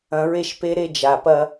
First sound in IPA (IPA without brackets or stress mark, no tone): ɐ̃